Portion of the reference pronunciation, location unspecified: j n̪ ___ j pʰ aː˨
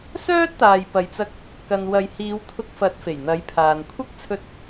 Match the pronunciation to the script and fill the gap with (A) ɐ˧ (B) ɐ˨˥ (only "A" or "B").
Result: B